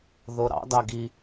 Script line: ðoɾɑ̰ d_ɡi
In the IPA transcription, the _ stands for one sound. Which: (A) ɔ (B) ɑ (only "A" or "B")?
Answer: B